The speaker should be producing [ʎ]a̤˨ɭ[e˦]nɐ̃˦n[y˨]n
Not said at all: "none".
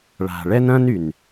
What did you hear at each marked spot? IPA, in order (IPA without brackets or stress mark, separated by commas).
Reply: ɭ, ɛ˦, y˨